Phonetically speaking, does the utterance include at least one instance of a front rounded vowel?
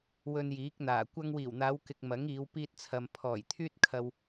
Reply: yes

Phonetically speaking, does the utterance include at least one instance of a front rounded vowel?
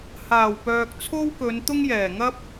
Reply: yes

